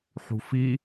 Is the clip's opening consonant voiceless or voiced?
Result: voiceless